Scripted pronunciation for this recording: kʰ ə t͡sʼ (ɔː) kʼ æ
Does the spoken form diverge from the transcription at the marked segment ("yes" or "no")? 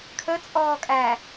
no